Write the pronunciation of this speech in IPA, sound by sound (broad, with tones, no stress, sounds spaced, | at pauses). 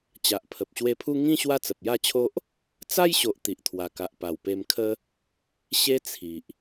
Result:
t͡ɕ a˨ ʔ pʰ ə˨ p̚ ɕ w e˧ pʰ u˦ ŋ ĩ˦ ɕ w a˦ t͡s ə˨ p̚ j a˥˧ t͡ɕʰ o˦ ʔ | t͡s a˦ j ɕ o˨ ʔ t̪ i˨ ʔ t̪ʰ w a˨˩ k a˨ ʔ p a˨˩ w p e˧ m kʰ ə˦ | ɕ e˦ t͡sʰ i˨ ʔ